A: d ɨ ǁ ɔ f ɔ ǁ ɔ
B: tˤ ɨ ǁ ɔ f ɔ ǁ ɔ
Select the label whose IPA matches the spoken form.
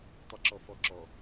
B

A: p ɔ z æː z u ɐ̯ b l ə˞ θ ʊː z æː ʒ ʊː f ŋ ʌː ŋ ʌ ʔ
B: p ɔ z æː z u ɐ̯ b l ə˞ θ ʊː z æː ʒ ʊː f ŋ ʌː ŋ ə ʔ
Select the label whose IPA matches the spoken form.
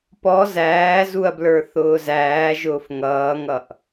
A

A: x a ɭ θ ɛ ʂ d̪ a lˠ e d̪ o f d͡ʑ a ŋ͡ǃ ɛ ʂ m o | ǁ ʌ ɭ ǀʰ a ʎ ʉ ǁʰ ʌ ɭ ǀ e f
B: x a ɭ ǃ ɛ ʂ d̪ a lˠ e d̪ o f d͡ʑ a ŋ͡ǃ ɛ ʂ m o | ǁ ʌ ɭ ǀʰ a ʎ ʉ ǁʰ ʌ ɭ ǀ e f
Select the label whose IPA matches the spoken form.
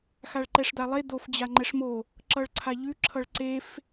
B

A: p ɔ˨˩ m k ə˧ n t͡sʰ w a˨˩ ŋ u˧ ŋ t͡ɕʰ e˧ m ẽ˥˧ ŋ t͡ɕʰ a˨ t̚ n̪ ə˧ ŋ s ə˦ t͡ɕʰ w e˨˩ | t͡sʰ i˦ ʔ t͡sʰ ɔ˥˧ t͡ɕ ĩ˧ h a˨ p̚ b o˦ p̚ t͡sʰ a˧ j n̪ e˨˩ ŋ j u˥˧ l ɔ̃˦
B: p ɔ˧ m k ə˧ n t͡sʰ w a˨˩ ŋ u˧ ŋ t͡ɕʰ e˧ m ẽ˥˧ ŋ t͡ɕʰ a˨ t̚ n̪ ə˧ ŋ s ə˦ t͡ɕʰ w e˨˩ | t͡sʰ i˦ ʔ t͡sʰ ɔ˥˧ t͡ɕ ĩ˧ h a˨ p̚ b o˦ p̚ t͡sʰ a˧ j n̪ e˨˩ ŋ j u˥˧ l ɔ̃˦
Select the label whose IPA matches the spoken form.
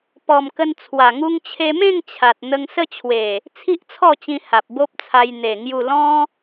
A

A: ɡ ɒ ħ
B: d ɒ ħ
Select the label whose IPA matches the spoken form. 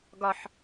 A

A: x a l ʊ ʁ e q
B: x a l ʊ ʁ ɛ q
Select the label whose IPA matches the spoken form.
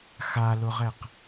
B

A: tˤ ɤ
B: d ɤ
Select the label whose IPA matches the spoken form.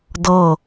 B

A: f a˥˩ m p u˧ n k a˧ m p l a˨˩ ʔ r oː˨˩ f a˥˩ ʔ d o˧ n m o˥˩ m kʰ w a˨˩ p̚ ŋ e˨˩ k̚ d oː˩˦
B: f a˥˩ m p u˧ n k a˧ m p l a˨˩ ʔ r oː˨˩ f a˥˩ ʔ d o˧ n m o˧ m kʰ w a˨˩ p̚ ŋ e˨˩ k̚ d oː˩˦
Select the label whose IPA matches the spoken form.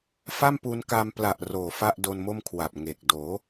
A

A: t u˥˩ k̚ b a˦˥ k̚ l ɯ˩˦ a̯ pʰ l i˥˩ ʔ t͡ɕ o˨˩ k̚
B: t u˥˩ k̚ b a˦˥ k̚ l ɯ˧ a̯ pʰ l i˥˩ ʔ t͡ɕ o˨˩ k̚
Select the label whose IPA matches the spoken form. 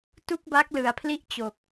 A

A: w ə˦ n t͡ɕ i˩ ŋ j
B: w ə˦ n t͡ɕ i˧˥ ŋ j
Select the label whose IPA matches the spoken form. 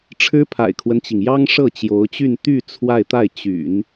A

